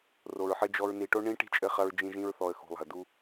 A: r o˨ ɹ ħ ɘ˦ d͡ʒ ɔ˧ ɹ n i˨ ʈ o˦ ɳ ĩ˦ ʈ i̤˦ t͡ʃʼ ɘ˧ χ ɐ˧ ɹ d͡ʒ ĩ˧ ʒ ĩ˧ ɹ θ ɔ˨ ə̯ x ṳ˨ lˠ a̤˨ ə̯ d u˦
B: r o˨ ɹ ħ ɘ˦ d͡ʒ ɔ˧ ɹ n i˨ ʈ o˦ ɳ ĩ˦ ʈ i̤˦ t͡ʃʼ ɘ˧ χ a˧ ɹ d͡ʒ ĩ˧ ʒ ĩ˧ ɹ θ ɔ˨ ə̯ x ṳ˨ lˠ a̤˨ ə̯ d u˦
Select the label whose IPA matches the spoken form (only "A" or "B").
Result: A